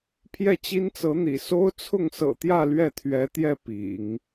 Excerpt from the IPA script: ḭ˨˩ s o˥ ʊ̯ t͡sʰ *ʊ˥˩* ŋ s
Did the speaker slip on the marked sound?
no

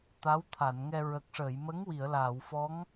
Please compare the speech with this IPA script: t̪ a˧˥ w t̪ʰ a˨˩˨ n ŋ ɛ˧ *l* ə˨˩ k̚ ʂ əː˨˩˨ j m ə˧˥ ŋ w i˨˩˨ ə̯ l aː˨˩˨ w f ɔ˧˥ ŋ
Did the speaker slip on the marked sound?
yes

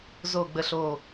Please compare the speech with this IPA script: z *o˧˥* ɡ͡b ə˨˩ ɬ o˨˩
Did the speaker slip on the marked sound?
yes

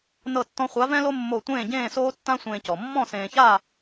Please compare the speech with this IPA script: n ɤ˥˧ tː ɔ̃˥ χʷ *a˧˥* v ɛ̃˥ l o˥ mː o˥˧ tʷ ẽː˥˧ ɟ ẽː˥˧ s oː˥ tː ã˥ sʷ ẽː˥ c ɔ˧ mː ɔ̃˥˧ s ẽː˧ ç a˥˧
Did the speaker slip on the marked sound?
no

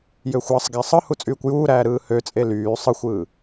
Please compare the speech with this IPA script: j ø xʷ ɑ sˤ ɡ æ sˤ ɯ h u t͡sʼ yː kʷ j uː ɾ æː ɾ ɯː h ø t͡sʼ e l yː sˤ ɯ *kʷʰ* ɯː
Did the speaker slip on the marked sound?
yes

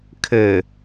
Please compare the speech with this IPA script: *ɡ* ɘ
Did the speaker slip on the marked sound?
yes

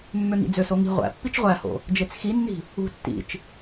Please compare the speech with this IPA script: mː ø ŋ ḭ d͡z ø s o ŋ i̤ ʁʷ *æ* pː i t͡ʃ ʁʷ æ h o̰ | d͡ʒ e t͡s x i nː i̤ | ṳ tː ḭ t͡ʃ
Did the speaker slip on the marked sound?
yes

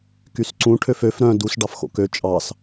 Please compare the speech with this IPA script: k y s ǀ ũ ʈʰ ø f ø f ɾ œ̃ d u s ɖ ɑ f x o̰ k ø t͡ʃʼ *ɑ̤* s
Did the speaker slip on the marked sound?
yes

